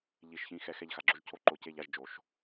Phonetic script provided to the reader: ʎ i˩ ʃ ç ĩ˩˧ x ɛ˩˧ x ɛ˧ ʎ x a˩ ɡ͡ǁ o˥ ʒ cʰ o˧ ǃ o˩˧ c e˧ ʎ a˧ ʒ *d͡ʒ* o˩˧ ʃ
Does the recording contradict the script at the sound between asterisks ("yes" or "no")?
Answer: no